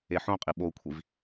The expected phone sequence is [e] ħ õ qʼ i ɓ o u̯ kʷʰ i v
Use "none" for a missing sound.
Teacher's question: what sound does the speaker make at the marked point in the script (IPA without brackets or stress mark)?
e